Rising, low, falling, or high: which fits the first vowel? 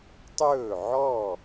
falling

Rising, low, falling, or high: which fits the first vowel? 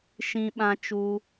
high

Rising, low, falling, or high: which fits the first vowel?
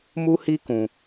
high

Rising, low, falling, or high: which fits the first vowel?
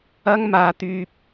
high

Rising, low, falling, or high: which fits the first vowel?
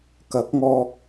rising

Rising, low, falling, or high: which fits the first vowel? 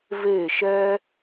falling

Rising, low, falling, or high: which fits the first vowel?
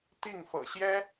falling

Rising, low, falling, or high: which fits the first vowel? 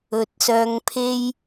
low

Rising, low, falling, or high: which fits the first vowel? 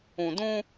low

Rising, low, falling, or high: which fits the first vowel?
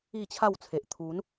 falling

